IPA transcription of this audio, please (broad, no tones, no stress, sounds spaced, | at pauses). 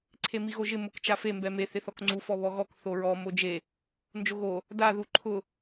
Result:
ǀʰ e m i ɣ o ʒ ɪ m ʊ k t͡ʃ a f e m b ɛ m e θ ɪ θ ɔ k ŋ͡ǀ u f ɔ β ɔ ɣ ɔ k θ o ɹ ɔ m o d͡ʒ e | n d͡ʒ o ɣ o | d a ð u ǃʰ ʊ